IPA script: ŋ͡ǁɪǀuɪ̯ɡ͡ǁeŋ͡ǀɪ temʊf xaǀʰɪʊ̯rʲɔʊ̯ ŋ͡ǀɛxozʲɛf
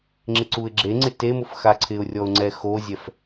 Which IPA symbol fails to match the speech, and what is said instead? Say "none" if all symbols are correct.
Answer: none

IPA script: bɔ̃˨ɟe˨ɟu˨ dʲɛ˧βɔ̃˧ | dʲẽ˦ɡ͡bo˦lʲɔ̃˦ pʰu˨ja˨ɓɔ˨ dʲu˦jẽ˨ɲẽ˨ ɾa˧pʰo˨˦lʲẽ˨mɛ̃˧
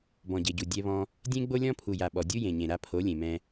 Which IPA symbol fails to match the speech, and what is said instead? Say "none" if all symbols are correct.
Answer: none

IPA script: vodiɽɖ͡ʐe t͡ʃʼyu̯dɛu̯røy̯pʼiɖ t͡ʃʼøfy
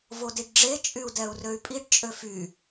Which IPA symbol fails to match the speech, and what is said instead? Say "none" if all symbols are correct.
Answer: ɽ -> ɖ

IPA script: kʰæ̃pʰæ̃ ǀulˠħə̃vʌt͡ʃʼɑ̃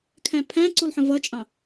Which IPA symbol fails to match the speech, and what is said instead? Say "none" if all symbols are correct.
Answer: none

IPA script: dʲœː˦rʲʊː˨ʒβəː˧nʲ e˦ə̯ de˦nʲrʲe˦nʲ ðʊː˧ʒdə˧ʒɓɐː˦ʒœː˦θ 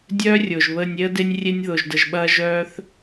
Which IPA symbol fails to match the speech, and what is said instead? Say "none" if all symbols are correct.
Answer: none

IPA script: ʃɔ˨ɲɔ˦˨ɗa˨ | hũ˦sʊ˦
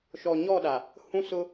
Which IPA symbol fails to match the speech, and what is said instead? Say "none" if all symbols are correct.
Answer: none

